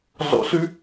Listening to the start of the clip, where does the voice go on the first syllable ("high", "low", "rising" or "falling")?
low